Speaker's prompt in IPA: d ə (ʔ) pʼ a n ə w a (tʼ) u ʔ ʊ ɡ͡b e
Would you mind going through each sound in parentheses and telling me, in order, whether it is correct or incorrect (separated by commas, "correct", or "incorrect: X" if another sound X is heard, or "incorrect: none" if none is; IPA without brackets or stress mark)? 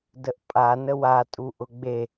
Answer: correct, correct